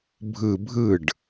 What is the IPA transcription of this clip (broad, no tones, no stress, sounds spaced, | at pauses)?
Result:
bʱ ɯ bʱ ɯ ɖ